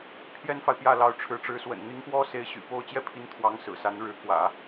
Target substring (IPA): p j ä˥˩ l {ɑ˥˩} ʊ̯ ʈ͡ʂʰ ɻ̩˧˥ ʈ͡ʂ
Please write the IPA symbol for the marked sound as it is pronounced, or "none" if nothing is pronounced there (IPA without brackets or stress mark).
ɑ˧˥